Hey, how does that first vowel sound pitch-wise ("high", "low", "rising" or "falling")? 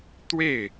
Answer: falling